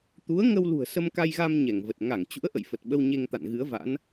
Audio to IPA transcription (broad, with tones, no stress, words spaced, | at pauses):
t̪u˨˦ə̯ŋə˧w lṳ˨˩ə̯sə˧mka˧jɣa˧m ɲɛ˧˩ŋ və˨˩t̚ŋa˧˩ŋ t͡ɕṵ˧˥ə̯ʔə̰˧˨jfə˨˩t̚ ɓə˧wɲe˧ŋt̪a̰˧˨n ɣɨ˨˦ə̯va̰˧˥n